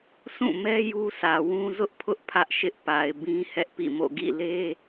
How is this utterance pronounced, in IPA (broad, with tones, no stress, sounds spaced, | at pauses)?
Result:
s ũ˦˨ m ɛ˦ j u˦ sʰ ä˨ w ũ˦ z ʊ˦ ʔ pʰ ʊ˦ ʔ pʰ ä˦ ʔ ʃ ɪ˦ ʔ p a˨ ɪ̯ b ĩ˦ h ɛ˦ ʔ p ḭ˦˨ m o̰˦˨ ɡ ḭ˦˨ l e˦